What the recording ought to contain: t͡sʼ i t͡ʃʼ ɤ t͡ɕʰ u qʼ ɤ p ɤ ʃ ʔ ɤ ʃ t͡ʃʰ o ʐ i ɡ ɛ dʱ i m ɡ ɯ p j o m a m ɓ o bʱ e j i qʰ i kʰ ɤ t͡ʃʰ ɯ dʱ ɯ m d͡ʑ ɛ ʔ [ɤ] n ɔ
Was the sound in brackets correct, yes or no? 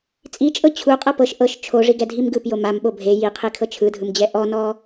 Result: no